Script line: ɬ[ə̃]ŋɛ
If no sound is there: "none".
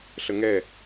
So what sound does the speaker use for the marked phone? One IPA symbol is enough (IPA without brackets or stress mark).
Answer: ə